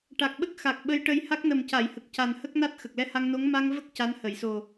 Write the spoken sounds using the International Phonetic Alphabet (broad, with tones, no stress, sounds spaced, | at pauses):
ʈ a˨˩ k̚ ɓ ə˦˥ k̚ x a˨˩ k̚ ɓ ə˧˥ j ʈ ə˧ j h a˦˥ k̚ n ə˨˩ m c a˨˩˨ j h ə˨˩ k̚ c a˨˩ n h ə˦˥ k̚ n a˦˥ t̚ x ə˨˩ k̚ l ɛ˧ h a˧ ŋ n o˧˥ ŋ m a˧ ŋ v ə˦˥ k̚ c a˧˥ n h ə˨˩˨ j s o˨˩